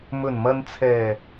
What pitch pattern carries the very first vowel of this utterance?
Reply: low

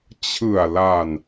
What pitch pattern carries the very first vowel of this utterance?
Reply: low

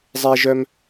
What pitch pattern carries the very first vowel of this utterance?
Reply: high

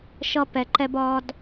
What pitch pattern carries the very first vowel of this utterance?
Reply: high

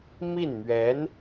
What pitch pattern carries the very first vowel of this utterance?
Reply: falling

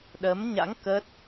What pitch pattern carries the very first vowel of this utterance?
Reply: rising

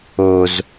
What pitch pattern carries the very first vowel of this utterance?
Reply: high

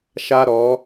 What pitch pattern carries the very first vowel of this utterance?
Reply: high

